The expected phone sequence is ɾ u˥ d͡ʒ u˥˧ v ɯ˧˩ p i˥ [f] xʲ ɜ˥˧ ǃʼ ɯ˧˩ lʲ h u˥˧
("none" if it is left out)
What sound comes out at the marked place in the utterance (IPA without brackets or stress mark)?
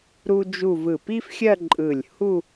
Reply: f